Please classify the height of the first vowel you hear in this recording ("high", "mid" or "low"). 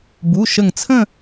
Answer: high